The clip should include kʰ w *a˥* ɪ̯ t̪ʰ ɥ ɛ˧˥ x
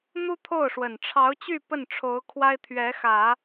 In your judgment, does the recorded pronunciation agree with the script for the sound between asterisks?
yes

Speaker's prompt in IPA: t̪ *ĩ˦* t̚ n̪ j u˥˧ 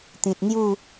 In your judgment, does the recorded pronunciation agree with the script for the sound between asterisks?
no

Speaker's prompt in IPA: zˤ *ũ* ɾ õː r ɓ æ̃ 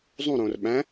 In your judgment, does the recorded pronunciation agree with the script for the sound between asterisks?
yes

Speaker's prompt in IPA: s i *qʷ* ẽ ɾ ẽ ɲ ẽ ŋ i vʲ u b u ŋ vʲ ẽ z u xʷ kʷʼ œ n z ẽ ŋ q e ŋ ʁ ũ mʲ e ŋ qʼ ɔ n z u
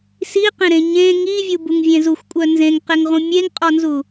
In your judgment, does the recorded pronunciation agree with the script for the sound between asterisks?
no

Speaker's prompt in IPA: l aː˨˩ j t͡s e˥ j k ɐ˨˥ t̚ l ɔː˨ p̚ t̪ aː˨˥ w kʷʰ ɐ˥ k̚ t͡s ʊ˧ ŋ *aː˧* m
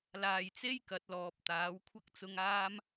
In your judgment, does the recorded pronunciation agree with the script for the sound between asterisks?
no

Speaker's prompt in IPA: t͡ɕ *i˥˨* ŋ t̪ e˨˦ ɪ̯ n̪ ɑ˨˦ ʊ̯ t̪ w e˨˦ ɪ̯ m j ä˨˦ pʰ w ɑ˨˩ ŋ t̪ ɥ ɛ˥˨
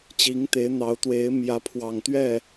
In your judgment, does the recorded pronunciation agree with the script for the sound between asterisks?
no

